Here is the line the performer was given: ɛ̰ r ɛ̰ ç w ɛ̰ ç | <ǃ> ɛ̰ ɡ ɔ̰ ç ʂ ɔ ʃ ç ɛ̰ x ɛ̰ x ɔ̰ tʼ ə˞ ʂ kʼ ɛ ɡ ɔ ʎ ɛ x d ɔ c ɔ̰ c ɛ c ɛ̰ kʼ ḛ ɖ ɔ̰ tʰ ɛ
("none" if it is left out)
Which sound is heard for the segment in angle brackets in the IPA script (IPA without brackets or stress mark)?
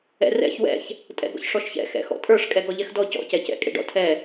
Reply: tʼ